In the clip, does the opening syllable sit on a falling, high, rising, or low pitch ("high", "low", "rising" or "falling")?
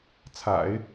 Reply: low